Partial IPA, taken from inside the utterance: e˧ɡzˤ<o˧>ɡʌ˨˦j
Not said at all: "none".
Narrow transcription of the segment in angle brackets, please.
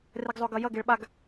o˧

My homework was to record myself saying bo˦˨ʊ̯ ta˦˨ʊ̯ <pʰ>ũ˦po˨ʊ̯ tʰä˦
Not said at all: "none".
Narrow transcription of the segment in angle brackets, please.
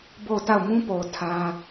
m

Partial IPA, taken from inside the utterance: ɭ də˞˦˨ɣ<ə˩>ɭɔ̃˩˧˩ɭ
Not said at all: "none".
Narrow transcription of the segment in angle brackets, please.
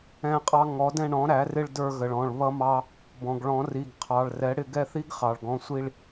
ə˩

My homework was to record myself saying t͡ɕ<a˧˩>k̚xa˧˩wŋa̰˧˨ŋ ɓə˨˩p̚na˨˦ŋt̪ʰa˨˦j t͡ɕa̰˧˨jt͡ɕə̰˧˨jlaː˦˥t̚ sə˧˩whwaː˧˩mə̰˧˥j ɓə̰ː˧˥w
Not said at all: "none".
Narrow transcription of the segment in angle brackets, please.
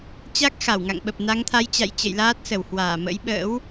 a˦˥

